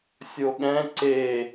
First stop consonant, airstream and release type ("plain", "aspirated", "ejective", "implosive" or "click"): implosive